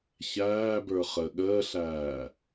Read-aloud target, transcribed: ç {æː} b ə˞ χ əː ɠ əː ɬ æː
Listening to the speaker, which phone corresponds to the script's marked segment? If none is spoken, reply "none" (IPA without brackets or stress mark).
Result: æː